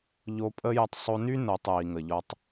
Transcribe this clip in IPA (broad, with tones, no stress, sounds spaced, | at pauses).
ʎ o˧ pʼ ə˦ j ə˧ tˤ sˤ o˧ n y˦ n o˨ tˤ j i˨ ŋ ə˨ ʎ ɔ˧ tˤ